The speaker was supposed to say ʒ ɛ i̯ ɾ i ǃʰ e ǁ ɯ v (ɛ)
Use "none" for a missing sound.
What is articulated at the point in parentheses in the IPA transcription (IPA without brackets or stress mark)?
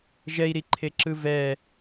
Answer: ɛ